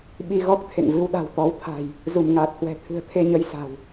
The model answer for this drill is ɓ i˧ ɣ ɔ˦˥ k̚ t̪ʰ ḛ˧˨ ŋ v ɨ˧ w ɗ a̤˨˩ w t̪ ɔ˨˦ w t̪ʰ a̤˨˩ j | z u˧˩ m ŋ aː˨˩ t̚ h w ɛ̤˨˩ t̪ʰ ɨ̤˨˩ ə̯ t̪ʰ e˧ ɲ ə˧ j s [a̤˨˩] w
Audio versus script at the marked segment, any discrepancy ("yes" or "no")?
no